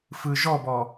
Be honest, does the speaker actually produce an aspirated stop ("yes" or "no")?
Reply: no